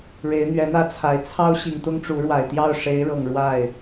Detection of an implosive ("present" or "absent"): absent